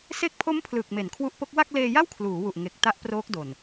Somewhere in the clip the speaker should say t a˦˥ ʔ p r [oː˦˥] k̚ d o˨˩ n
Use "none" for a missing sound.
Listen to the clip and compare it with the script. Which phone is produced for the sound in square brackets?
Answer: oː˦˥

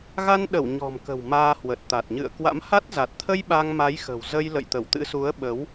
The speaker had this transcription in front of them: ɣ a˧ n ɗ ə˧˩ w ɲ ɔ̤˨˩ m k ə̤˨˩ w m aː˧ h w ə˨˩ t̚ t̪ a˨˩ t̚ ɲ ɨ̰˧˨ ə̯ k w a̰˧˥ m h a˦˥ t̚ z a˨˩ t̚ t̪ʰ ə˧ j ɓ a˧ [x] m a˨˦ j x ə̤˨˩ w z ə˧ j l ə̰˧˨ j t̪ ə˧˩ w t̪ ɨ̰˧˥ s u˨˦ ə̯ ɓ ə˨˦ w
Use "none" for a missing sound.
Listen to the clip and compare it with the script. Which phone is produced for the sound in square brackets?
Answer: ŋ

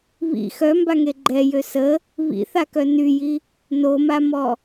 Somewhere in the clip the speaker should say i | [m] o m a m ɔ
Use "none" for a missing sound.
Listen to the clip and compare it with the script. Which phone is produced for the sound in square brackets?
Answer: n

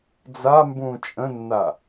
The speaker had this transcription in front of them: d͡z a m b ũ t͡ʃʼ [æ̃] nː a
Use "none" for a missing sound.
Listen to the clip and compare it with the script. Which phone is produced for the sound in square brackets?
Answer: ə̃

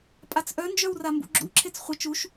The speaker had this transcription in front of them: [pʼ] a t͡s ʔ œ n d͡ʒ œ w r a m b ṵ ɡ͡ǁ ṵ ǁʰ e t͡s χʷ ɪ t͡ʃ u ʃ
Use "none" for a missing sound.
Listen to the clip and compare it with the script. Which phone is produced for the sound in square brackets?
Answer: pʼ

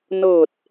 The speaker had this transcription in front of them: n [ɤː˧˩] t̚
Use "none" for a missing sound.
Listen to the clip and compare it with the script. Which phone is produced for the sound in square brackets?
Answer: ɤː˧˩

